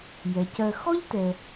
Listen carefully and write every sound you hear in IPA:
j ɛ˩ c ɜ˨ x ɔ˥ ʎ t ɛ˨

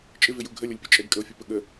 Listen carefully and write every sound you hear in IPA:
t͡ʃʼ ɪ v ɪ j u ɡʱ ə lʲ ʌ lʲ pʲ ə t͡ʃʼ ɛ ɡ kʼ ə o̯ fʲ ʌ p ə ɠ ə

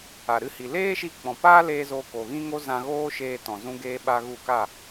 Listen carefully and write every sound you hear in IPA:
a˨ ɾ ɨ˧ h i˨ l eː˦ ʃ i˧ k͡p ɔ̃˨ p aː˦ l eː˧ z o˧ k o˨ ɣ ĩ˦ ŋ o˦ z ã˧ ɣ oː˦ ʃ eː˧ t ɔ̃˨ z ũ˧ ɡ eː˦ ɓ a˦ ɣ u˦˨ k a˦˨

